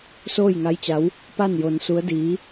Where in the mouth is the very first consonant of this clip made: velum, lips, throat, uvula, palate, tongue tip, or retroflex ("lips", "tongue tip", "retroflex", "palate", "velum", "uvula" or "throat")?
tongue tip